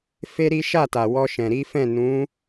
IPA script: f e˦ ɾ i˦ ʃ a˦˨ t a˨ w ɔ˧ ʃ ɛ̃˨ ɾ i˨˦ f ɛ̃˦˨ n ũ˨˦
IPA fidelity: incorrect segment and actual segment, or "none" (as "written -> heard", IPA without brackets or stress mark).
none